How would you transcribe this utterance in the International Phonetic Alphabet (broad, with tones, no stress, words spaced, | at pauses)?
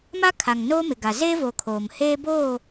ma˦kʰa˨ŋ noː˦mɪ˨ɡa˨ zeː˦voː˨ kʰoː˨m heː˦boː˦˨